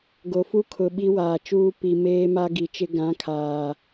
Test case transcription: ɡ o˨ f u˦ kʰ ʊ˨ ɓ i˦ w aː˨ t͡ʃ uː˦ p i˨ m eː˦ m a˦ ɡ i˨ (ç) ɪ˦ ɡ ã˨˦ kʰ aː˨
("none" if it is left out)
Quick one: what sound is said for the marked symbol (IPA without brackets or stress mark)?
t͡ʃ